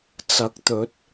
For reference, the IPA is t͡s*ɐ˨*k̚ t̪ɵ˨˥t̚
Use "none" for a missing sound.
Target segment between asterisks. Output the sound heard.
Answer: ɐ˨˥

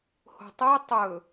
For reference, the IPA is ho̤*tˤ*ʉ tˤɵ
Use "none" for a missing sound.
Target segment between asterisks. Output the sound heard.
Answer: tˤ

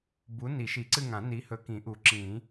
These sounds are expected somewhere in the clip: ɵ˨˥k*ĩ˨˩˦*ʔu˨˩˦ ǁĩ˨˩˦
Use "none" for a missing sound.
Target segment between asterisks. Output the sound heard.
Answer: ĩ˨˩˦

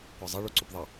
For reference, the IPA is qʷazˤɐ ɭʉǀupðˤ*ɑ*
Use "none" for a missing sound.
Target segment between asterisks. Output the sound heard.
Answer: ɐ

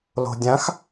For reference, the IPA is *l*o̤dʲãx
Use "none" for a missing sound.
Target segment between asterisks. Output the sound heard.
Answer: l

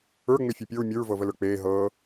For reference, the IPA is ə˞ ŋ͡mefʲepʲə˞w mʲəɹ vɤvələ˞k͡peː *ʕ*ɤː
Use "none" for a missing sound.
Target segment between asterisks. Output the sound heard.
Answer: ɦ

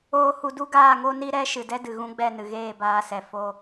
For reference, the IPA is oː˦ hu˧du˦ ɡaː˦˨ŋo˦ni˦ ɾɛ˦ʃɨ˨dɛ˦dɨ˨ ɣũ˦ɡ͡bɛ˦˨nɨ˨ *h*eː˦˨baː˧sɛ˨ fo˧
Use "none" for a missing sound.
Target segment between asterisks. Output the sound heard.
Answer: ɣ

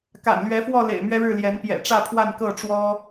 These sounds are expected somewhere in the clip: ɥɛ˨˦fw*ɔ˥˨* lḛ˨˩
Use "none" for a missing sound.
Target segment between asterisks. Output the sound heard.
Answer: ɔ˥˨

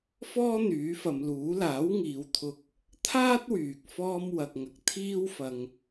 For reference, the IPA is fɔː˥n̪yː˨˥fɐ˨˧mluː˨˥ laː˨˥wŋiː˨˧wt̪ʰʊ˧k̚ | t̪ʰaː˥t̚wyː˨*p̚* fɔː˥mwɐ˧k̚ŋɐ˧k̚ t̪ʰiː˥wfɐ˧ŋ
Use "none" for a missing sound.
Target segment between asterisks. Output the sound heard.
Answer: k̚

